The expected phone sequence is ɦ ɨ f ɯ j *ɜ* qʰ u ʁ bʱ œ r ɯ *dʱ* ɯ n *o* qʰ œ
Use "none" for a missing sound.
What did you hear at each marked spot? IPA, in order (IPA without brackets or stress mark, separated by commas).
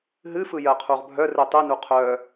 ɜ, tˤ, u